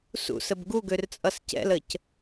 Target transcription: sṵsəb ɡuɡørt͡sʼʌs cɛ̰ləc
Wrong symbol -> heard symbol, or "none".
none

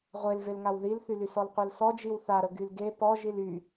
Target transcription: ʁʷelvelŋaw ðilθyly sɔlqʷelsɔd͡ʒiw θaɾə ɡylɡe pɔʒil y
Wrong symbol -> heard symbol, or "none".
none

